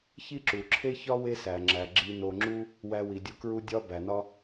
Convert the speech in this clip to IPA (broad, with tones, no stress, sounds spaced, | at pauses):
ç i˥ ǁ u˩ ǁʰ e˥ ç ɒ˥ w e˦ s æ˩ ŋ͡ǁ æ˩ ɡ͡ǁ i˨ n o˨ ŋ͡ǁ u˥ | w æ˦ w i˩ dʲ u˦ k ɹ u˥ dʲ ɒ˦ b æ˩ n ɒ˥